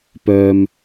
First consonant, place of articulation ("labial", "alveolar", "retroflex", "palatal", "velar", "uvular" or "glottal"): labial